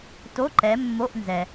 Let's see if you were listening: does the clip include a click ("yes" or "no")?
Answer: yes